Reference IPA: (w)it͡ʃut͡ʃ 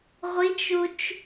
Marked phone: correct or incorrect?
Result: incorrect